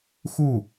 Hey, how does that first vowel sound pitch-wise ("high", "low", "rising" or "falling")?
falling